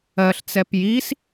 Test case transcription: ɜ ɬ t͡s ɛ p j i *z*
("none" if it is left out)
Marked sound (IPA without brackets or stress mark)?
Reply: s